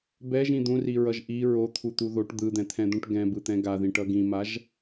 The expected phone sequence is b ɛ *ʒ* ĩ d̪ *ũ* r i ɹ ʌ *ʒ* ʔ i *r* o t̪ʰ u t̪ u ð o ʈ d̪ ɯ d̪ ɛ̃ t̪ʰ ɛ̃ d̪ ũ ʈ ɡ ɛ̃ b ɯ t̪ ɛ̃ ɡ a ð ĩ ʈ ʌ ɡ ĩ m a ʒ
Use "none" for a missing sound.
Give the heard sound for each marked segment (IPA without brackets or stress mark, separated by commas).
ʒ, ũ, ʒ, ɹ